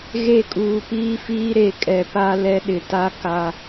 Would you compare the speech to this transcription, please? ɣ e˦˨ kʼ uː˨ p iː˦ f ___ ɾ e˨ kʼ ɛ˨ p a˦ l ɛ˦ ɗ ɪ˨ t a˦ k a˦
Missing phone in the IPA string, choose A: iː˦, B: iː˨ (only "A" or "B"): A